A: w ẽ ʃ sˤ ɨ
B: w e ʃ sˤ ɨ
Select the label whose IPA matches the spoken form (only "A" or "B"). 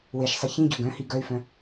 B